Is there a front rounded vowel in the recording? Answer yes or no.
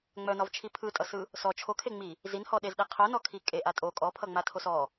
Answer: yes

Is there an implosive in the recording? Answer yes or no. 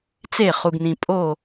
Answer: no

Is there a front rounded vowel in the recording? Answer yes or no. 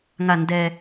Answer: no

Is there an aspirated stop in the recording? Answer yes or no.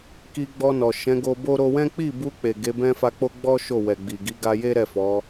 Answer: no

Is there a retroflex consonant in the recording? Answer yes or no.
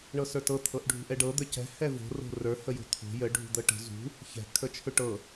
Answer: yes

